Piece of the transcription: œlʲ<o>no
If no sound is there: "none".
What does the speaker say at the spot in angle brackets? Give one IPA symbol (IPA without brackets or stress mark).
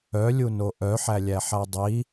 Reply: u